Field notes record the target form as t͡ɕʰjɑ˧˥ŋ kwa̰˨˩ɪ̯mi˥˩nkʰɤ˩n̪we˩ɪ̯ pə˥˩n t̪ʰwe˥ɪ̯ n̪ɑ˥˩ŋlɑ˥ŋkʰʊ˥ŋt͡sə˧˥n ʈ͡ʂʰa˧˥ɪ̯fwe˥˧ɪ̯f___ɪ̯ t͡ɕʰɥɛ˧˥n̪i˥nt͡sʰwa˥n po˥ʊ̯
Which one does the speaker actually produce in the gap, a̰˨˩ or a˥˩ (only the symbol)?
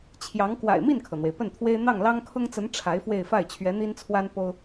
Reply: a˥˩